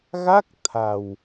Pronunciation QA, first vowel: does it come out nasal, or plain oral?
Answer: oral